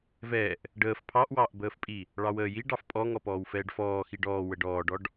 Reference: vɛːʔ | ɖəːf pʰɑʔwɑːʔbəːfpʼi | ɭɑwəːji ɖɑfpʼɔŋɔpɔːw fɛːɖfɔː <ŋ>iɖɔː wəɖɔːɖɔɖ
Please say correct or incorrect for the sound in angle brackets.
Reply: incorrect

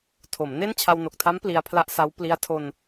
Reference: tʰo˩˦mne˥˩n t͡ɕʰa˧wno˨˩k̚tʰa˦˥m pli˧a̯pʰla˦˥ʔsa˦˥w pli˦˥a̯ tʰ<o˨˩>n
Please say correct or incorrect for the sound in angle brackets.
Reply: incorrect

